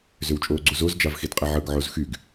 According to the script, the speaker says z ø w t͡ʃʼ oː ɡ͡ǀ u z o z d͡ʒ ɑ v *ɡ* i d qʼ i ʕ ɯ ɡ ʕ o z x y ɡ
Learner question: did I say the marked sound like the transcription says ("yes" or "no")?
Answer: no